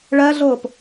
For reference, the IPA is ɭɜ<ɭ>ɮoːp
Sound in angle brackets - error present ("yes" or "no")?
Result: yes